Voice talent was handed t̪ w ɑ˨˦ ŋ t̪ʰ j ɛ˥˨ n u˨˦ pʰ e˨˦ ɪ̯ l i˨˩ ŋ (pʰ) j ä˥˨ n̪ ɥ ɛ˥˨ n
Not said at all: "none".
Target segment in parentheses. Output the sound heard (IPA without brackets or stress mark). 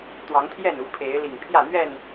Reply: pʰ